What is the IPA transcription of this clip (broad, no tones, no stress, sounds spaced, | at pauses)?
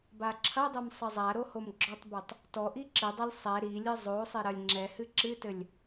b a ǁʰ ɐ dˤ e m sˤ ɘ zˤ a ɾ o h o m ɡ͡ǁ ɔ tˤ b ɛ tˤ | t ɔ ʔ i ǁ ɨ dˤ ɛ lʲ sˤ ɛ ɾ i lʲ ɨ zˤ o sˤ e ɾ ɐ lʲ ŋ͡ǁ ɛ h ɨ ǁ ɨ t ɘ lʲ